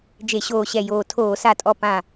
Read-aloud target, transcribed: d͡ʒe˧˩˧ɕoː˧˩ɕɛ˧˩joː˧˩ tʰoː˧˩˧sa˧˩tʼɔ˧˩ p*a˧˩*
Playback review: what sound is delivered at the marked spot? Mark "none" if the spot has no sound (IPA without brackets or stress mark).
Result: ã˧˩